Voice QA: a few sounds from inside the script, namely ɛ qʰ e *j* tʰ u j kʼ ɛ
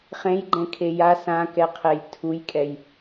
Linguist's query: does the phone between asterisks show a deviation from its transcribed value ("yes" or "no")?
no